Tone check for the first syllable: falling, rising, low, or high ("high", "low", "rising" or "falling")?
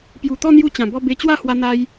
low